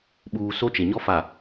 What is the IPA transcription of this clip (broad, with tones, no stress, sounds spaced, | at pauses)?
ɓ uː˨ s o˦ t͡ʃ e˨ ɲ ɔ˦ f a˨